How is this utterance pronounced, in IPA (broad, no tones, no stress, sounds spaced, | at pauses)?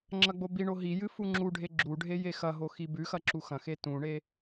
ŋ͡ǁ ɐ ɡ͡b o b i ɳ o ɦ i j ɨ f u ŋ͡ǁ u ɖʱ e ɡ͡ǁ u ɖʱ e j e x ɐ ɦ o x i b ʉ x ɐ ǁ u x ɐ̃ x e t ũ ɳ e